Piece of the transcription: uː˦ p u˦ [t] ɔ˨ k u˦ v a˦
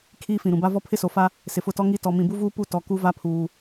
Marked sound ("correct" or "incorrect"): correct